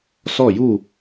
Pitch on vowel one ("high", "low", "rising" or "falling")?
falling